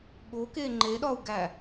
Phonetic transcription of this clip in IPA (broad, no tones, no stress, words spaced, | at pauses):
ɠoke ŋ͡ǃeɗɒu̯ɡæ